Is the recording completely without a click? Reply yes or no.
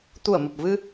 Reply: yes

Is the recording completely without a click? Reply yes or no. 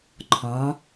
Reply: no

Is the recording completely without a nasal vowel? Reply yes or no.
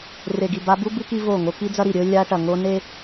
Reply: yes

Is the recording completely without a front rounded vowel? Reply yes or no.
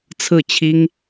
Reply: yes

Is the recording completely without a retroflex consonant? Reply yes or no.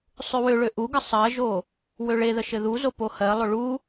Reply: no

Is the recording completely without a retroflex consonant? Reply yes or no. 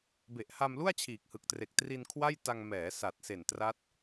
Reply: yes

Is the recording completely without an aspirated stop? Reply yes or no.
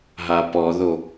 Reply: yes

